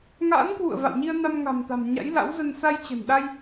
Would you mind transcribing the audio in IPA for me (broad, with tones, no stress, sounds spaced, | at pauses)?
ŋ a̰ː˧˥ n k w ṵ˧˨ ə̯ v a̰˧˨ w ɲ i˧ ə̯ n a˧ m ŋ a̤˨˩ m t̪ a̤˨˩ m ɲ a̰˧˥ j l a̰˧˥ w z ə˧ n s a˧ j t͡ɕ ə̤˨˩ n ɗ a˧ j